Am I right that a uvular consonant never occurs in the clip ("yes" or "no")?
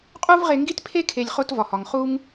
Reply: no